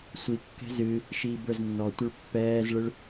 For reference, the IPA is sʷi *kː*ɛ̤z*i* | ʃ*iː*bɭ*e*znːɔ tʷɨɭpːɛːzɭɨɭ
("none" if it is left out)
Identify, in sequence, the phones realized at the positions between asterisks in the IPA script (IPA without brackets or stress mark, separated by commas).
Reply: kː, ɨ, iː, ɘ